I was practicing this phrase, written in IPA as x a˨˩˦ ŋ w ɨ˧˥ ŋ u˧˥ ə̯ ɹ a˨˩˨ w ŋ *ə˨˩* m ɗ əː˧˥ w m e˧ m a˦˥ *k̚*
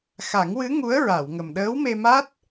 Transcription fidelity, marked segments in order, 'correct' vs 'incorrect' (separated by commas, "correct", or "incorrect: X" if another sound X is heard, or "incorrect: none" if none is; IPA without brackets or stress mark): correct, incorrect: t̚